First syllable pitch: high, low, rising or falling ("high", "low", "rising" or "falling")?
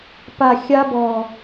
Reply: low